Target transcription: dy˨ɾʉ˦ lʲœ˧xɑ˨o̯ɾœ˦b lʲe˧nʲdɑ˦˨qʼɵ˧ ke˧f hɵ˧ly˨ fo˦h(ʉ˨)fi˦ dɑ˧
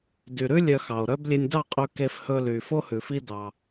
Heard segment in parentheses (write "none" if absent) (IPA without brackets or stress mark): ʉ˨